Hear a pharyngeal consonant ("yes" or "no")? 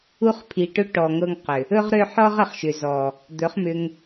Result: yes